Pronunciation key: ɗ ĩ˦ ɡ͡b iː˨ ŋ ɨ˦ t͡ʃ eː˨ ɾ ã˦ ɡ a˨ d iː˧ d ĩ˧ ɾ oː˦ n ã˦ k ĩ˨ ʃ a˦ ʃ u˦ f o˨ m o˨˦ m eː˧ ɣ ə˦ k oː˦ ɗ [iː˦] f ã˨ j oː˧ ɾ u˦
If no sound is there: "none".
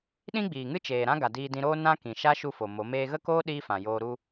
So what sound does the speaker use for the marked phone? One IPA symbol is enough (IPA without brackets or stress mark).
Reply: iː˦